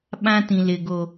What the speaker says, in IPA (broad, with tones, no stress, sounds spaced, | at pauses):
ɓ ã˦ t ĩ˨ l ɪ˨ ɡ o˨